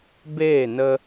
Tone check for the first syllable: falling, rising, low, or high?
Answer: falling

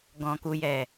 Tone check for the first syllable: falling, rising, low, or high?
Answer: low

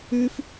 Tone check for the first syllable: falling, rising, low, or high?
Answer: high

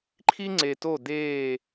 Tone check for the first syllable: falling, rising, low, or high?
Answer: high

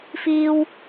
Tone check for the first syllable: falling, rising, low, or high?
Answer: high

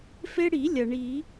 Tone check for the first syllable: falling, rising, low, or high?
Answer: high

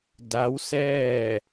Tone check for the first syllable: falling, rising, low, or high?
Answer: rising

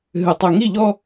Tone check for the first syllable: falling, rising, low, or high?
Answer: low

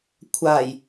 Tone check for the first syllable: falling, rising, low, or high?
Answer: low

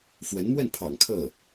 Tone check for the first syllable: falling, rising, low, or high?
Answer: rising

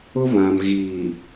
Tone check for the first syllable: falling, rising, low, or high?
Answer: high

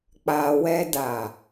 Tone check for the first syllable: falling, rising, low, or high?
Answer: low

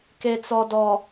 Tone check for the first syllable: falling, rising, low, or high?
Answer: low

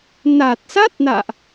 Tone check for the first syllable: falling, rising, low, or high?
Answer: low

